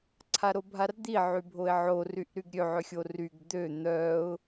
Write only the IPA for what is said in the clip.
ǀʰaɾobʱard̪i ʕybʱoɪ̯ʕo ryʔɾyɡɾʲø ʕøxʲoryɡ d̪ø n̪œʊ̯

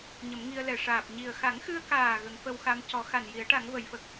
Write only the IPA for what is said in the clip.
ɲə˨˩˦mŋi˧ə̯lɛ˨˩ ʂaː˨˩p̚ ɲi˨˩ə̯xa˨˩˦ŋxɨ˧ə̯kaː˨˩ ɣə˨˩˦ŋfə˧wxa˧m cɔ˨˩˦xa˨˩n ji˨˩˦ə̯ʈa˨˩˦ŋ və˨˩˦jfə˨˩k̚

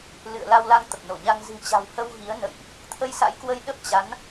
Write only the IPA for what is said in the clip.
lɨ̰˧˨ə̯ la˧wla˧ŋ t̪ə˨˩p̚no˧˩ɲa˧ŋ zɨ̤˨˩t͡ɕa̤˨˩w hə˧wɣi˨˦ə̯nə̰˧˨jʔ | t̪ʰə˧jsa̰˧˥jkwə˧j ɗə˦˥p̚t͡ɕa˨˦n

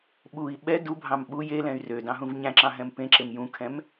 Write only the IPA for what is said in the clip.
ɓui̯ ɓɛ dubʱɑ̃m ɓu jelɛ̃y̯ rødɑ̃ɦũv ɲæ̃ǁɑ̃ɦɛ̃m pẽǁem jũkʰɛ̃m

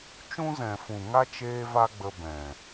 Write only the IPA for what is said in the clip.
t͡ʃũ˦zɛ̃˨fũ˨ŋa˦ t͡ʃeː˦va˦ɡ͡bə˧ bɛ̃˨

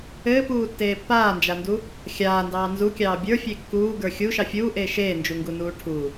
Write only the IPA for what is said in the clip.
ɘːpuːtːeː pːaːnd͡ʒandu | xʲaːndɑː nzukʲɑː bʲə˞fʲe kːuːɡə˞ xʲuʃɑ fʲuːʔeː ʃeːnd͡ʒuŋɡunuː ʈʰu

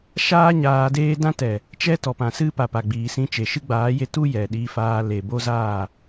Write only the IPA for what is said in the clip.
ʃaː˦ ɲaː˧deː˦ dã˦tɛ˨ | t͡ʃɛ˦tɔ˨pã˨ sɨ˦ pa˨pa˨ɡ͡biː˨ sĩ˧t͡ʃe˨ʃɨ˦ ɡ͡baː˨˦je˧ tu˦ jɛ˨ɗiː˧faː˧ le˨bo˦zaː˦˨

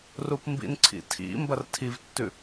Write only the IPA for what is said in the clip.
rupmbḭnǀʰḭ tʰḭ mbɐrtʰivtːʉ

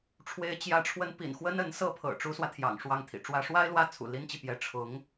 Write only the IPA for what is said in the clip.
ʈ͡ʂʰwe˧˥ɪ̯t͡ɕjä˧˥ʈ͡ʂʰwə˧˥n pḭ˨˩nxwə˥nə˧˥n sɤ˥˩pʰɤ̰˨˩ ʈ͡ʂu˧˥swä˧t̪ʰjɑ̰˨˩ŋ ʂwɑ˥˩ŋt̪ʰḭ˨˩ʈ͡ʂwä˥ ʂwa˥ɪ̯ lwä˥˩t͡sʰṵ˨˩ li˥nt͡ɕi˨pjɛ˧˥ ʈ͡ʂʰʊ˧˥ŋ

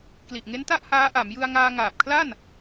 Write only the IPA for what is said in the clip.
kli˨˩ʔŋe˦˥nta˥˩ʔ haː˦˥ʔa˩˦m jɯ˧a̯ŋaː˧ ŋaː˨˩p̚kʰla˥˩n

